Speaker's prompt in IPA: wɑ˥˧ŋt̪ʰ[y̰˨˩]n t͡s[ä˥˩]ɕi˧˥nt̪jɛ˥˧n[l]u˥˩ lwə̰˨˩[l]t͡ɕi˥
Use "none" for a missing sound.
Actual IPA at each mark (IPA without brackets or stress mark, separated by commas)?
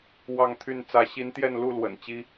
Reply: y˥˩, ä˧˥, l, n